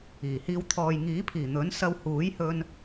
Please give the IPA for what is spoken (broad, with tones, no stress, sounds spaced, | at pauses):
iː˨˩ h iː˧ w t̪ʰ ɔː˨ j ŋ iː˨˥ pʰ iː˨˩ n̪ ɵ˨˥ n s ɐ˧ w h uː˨˥ j h ɵ˧ n